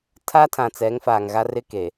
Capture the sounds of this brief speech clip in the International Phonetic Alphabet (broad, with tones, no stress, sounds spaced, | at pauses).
tʰ a˦ tʰ ã˨ t͡s ɛ˨˦ ŋ f aː˨ ŋ ɣ a˦ r ɪ˦ k e˨